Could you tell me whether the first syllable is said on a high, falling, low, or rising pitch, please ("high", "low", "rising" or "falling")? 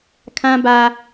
high